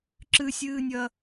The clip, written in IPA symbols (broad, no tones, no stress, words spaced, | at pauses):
ǁɨsʲɨːnʲɐ